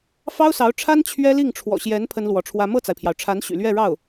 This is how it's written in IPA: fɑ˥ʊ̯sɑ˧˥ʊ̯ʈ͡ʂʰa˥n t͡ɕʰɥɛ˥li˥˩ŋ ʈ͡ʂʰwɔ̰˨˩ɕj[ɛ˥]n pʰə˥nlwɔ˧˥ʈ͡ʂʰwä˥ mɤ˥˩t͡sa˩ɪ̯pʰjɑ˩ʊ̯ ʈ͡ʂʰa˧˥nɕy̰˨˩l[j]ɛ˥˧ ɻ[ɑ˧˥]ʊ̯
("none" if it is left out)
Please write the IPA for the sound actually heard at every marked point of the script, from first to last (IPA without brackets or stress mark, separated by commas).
ɛ˧˥, ɥ, ɑ˥˩